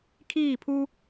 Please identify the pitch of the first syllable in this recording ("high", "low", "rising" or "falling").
falling